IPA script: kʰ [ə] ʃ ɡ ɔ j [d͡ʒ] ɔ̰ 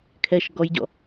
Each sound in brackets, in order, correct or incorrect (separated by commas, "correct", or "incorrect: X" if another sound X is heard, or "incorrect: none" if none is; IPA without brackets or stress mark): incorrect: ɛ, incorrect: ɟ